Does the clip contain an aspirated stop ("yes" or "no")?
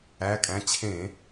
yes